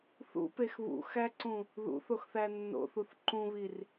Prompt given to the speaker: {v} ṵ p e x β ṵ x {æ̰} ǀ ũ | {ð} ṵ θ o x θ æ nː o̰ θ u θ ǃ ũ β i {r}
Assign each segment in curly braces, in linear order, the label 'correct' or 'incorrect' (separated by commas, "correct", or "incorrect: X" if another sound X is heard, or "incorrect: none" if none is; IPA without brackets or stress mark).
incorrect: θ, incorrect: æ, correct, correct